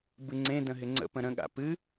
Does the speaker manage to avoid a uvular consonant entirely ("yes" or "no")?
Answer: yes